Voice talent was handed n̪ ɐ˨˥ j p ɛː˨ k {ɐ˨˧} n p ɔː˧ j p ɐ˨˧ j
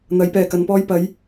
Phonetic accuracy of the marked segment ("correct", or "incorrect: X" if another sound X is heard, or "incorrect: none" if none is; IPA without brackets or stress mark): correct